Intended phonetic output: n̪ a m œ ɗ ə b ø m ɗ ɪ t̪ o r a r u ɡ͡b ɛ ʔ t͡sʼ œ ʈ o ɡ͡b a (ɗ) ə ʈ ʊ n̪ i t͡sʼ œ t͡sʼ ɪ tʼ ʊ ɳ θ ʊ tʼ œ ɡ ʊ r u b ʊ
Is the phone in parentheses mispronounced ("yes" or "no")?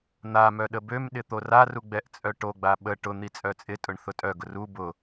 yes